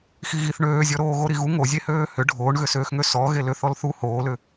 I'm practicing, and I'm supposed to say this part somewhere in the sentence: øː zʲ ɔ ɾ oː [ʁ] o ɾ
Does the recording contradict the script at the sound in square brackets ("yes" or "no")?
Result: yes